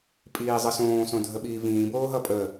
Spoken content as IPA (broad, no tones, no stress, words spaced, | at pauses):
pʼiːzˤəsõː sõdʱəɓiːvĩː boːɦʌpʼə